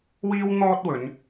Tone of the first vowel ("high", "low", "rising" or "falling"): high